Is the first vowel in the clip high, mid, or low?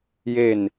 mid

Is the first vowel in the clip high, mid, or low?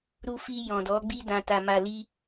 high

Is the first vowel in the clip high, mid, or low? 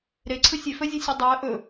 mid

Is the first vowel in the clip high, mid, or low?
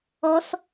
mid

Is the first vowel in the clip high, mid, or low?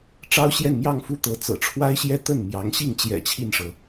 low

